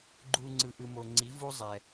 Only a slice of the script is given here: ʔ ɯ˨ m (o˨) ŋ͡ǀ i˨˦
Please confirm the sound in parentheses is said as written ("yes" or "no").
yes